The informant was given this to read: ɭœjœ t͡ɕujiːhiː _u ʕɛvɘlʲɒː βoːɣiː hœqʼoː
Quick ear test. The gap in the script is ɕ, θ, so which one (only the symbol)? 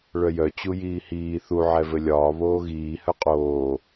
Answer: θ